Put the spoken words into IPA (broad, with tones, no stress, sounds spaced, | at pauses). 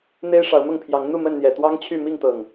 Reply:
n̪ e˦ ɪ̯ ʂ ɑ˨˦ ʊ̯ m ʊ˥˨ ŋ pʰ j ɑ˨˦ ŋ n̪ u˥˨ m ə˥˨ n n̪ j ɛ˨˩ t̪ w ɑ˦ ŋ t͡ɕʰ y˥˨ m i˥˨ ŋ t̪ ɤ˨˩ ŋ